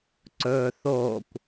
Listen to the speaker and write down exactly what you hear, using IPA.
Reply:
ǀ ɵː θ oː kʷ

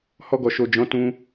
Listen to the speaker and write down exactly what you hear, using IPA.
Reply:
h ɔ˧ ɡ ɔ˨ ʃ o˨ d͡ʒ ɔ̃˨˦ t ũ˧

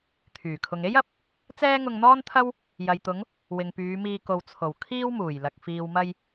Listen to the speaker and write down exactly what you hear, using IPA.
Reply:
t̪ʰ yː˨˩ kʰ ʊ˨ ŋ e˥ j ɐ˨˥ p̚ | t͡s ɛː˥ ŋ ʊ˧ ŋ n̪ ɔː˥ n t̪ʰ ɐ˥ w | j ɐ˨ j t̪ ʊ˨˧ ŋ | w ɪ˨ ŋ p yː˨˧ m iː˧ k o˨ w t͡sʰ o˨˩ w kʰ iː˥ w m uː˨˩ j l ɐ˨ k̚ f iː˨ w m ɐ˧ j

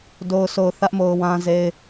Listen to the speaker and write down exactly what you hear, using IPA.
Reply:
d o˨ ʊ̯ s o˨ ʊ̯ θ ä˦ ʔ m o˨ ʊ̯ w ã˦ z e˦ ɪ̯

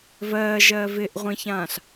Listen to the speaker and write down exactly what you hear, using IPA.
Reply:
v ɜː ʒ ɜː v ɪ ʔ ʁʷ ĩ ç ãː ɬ

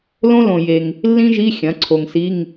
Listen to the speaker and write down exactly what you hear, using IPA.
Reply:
l õ˥ l õ˨ j e˨ ŋ | lː ĩ˥ ʒ i˧˥˧ xʲ ɐ̃˩˥ ǀʰ o˨ ŋ s i˧˥˧ ŋ

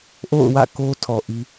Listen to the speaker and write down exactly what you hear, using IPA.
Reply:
ʔ o̰˦˨ ʊ̯ w ä̰˦˨ k o˦ tʰ ɔ˨ ʔ i˦

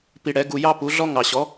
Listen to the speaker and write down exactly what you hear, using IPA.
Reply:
p i˧ ɽ ɛ˩˥ ɡ u˧ j ɑ˥ p u˩˥ ɮ ɔ˥ ŋ ɑ˩ ɕ ɔ˩˥

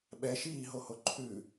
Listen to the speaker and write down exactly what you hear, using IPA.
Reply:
ɓ ɛ ʃ iː ɦ o h o ǃʰ ʉ

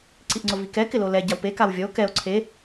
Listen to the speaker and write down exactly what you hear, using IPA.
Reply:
ǀ i ʔ ŋ͡ǀ ʊ v i k ɛ k ɪ l o l ɛ ɟ a w p e k a w vʲ ɔ o̯ k ɛ o̯ ǀʰ e

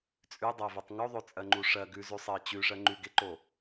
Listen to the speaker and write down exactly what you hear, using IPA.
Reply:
t͡sʼ ʉ dˤ ɜ v e tˤ ŋ o ðˤ o t͡sʼ ɜ ŋ͡ǃ u ʂ ɜ ɡ ʉ z ʉ sˤ ɜ t͡ɕ ʉ ʂ ɜ ŋ͡ǃ ʉ ɡ e ǃ o

